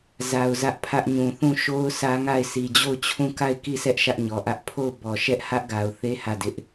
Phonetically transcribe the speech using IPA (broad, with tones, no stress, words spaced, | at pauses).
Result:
za˨ʊ̯zä˦ʔpʰä˦ʔɲũ˨ θũ˦˨ʃo˦ʊ̯ sä˦ŋa˦˨ɪ̯ si˨d͡ʑo˦˨ʊ̯t͡ɕʰũ˦˨ ka˦˨ɪ̯ ki˦˨sɛ˦ʔ ʃä˦ʔɲɔ˨ʔä˦ʔ pʰo˦˨ʊ̯bɔ˨ʃɛ˦ʔ hä˦ʔɡa˨ʊ̯θe˦ hä˦˨dɪ˦ʔ